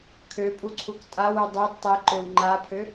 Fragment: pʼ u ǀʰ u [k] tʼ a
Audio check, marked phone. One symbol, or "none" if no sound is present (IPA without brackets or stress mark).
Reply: k